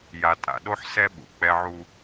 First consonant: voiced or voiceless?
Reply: voiced